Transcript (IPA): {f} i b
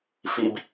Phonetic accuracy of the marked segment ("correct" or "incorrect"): correct